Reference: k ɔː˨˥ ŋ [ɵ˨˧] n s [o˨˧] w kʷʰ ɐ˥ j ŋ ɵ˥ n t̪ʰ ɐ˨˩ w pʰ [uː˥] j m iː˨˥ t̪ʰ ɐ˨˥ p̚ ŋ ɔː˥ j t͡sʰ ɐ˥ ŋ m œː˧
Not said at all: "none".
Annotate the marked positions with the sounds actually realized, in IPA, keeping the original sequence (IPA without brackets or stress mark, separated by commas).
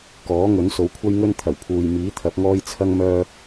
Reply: ɵ˨˥, o˨˧, uː˨